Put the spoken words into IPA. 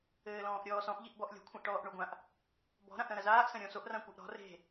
ɘːlɔ̃ːʔɾʲɔːsɔ̃ʔ ʎiʔbɔʔlʲɔ̤ kʷʰãʔʈɔːʔɳoɡʷãʔ | bɔ̤ ɾãʔɾɐ̃ɾɐzaːʔ sɐ̃ɾʲɔ̃soʔ rãkʷɘʔɾɔ̤ re̤

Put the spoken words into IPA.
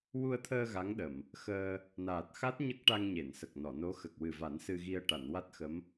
wu˧ə̯t̪ʰəː˧ ɣa˧˥ŋɗə˨˩˨m | xəː˧ | naː˨˩t̚xa˦˥t̚ ɲə˦˥k̚ʈa˧ŋ ɲe˨˩˨nsə˨˩k̚nɔ˨˩˨no˧˥ xə˨˩k̚wɨ˨˩va˨˩˦n sɨ˧ɣi˧ə̯ ʈa˨˩˨nwa˦˥t̚xə˧˥m

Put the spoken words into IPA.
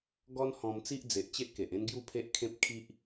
ɡɔ˦n hɔ̃˧mt͡si˦ʔd͡ze˨ʔt͡ɕe˦ʔ ke˨ʔẽ˦n ɡju˥˧pʰe˦ʔkʰẽ˦p̚kʰi˦ʔ

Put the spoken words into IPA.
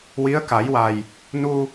wi˧˥ə̯ka˨˩˦jwa˨˩j | nu˧

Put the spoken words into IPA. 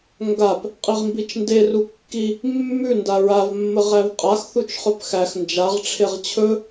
ŋɡap | qʼiʁmbit͡ʃnde rukːi | mːʉ ndaɹavmːə ʁævqʼax θut͡ʃχɵpxæx nd͡ʒaʁʈ͡ʂʰeʁ t͡ɕʰɵ

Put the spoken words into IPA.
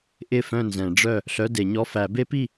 ʔɪ˥˨fœ̃˥˨nzɛ̃˨˩˦ɖ͡ʐœ˥˨ | ɬœ˧˥˧de˨˩˦ɲɔ˧˥˧ fæ˨˩˦be˦˥pi˥˨

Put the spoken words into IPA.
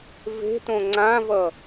ve̤tõ ŋ͡ǀãvʌ

